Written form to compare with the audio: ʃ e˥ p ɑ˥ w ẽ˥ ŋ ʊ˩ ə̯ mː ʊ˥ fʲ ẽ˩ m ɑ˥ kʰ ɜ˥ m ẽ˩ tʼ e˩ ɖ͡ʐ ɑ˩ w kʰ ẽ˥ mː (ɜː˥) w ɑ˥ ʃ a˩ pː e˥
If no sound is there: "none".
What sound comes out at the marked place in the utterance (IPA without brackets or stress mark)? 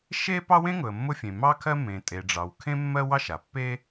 ɜ˥